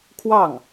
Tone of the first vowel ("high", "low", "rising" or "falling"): falling